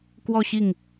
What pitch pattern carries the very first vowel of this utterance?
falling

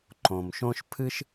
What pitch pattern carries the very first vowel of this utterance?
low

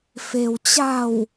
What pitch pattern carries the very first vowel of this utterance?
low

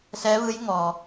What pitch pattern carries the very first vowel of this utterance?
rising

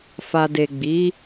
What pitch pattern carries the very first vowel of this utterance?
low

